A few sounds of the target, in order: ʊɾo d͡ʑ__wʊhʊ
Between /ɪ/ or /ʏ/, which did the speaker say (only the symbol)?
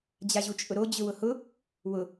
ʏ